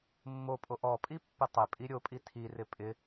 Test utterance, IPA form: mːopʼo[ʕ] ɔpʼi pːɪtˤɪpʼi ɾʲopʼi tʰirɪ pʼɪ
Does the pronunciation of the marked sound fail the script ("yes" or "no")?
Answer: yes